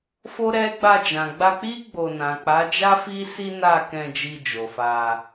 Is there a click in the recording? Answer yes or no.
no